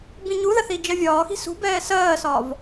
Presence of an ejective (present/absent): absent